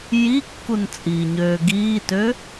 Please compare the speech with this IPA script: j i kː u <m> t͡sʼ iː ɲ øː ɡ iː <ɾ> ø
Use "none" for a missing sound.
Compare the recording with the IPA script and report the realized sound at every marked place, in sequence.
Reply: n, t

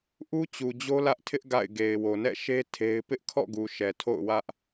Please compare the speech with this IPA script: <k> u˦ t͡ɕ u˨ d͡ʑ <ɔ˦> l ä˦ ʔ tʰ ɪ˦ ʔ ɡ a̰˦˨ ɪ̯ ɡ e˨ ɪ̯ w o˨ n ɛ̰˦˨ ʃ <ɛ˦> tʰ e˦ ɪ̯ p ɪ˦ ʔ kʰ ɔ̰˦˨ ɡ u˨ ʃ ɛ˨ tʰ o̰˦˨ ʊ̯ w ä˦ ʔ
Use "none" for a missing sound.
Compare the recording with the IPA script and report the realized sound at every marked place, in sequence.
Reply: ʔ, o˦, e˦

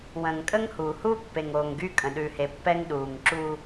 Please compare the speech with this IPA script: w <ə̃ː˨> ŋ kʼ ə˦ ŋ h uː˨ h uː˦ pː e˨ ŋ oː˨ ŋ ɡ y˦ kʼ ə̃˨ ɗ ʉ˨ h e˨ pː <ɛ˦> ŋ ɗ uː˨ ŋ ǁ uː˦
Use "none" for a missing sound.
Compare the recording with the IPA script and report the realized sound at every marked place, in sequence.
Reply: ə̃ː˨, ɛ˦

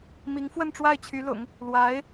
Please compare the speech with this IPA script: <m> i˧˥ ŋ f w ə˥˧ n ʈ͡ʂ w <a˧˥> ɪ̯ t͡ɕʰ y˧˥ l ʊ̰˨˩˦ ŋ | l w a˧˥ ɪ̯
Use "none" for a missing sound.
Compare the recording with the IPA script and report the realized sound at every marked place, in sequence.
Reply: m, a˥˩

